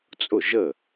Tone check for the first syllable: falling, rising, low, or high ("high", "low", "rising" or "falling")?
falling